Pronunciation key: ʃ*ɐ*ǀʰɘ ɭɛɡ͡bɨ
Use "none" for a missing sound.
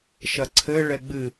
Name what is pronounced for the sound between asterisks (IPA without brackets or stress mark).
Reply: ɐ